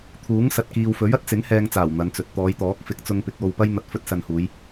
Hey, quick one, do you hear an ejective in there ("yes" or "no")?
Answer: no